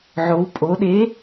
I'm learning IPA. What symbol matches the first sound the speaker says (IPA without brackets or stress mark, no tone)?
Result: ʕ